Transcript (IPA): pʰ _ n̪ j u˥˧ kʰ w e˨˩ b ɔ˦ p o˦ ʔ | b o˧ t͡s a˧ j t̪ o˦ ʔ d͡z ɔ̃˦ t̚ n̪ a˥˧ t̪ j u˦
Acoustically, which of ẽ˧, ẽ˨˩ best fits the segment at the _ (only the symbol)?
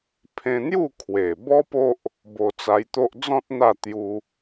ẽ˧